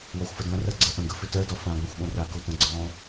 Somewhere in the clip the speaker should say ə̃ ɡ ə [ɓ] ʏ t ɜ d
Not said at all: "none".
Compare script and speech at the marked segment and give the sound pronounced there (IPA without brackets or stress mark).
f